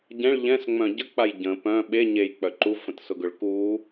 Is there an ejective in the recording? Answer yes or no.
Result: no